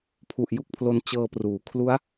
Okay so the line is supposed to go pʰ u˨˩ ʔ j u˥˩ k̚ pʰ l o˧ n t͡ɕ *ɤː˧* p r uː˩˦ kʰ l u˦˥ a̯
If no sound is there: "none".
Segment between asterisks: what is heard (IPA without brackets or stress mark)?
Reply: ɤː˧